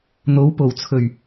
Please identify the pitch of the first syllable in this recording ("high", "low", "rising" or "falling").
rising